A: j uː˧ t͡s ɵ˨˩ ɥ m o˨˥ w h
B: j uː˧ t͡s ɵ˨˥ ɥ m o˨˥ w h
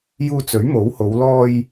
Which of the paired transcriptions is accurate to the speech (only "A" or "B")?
B